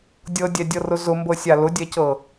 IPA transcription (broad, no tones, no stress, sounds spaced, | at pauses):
dʲ ɤ dʲ ɛ dʲ ɤ r ʊ z ʊ m b ɤ sʲ a l ʊ dʲ ɛ c ɤ